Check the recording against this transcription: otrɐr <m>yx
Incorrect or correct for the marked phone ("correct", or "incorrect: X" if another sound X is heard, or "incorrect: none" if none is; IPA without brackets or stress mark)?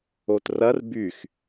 incorrect: b